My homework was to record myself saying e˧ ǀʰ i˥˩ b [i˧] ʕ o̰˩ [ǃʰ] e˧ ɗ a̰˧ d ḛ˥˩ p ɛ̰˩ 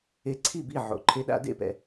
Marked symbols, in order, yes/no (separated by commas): no, yes